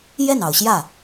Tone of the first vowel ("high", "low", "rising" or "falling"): falling